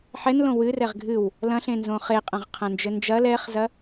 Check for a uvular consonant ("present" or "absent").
present